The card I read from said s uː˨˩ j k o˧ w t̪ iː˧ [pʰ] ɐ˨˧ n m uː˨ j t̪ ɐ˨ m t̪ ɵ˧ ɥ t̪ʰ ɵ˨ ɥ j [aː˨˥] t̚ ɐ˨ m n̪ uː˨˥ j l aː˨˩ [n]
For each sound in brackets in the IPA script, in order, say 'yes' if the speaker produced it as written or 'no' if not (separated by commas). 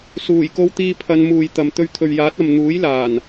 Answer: yes, yes, yes